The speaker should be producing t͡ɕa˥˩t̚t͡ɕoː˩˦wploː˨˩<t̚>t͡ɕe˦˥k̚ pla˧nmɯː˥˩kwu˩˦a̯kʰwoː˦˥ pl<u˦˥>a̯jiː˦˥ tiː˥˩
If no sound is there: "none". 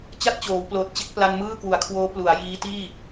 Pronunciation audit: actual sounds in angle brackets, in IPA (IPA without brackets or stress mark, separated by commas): t̚, u˩˦